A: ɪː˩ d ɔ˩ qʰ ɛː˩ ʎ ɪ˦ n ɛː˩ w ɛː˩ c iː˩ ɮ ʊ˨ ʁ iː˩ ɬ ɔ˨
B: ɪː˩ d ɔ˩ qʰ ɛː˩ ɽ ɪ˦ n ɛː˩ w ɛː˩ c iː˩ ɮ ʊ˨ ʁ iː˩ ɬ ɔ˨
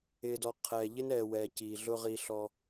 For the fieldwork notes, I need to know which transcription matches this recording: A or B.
A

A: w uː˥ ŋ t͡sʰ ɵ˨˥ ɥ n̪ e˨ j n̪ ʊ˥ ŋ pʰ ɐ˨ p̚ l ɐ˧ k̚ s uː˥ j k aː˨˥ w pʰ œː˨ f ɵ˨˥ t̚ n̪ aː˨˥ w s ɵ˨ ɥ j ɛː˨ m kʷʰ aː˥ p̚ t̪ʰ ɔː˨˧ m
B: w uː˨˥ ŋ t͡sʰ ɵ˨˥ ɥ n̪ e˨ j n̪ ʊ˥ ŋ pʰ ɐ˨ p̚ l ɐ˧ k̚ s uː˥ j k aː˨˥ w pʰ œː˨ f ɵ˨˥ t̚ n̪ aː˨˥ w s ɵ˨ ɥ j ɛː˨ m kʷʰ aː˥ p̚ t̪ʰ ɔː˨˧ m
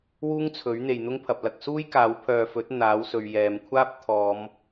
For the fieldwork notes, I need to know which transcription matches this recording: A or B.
A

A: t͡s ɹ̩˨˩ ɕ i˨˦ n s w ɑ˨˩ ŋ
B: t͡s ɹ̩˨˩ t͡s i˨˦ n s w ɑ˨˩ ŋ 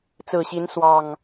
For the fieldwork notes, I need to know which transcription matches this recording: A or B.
A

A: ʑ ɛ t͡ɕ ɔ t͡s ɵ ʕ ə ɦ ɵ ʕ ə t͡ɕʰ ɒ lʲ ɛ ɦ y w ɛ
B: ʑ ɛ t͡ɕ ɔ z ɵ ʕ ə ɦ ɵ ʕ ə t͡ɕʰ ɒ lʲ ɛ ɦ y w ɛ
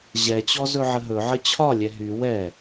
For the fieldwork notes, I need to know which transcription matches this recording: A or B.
B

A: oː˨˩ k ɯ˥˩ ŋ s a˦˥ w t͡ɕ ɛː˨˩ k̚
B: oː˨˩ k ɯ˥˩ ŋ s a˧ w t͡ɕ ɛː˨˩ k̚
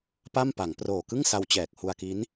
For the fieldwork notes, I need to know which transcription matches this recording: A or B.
B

